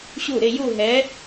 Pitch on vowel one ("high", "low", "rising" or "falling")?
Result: falling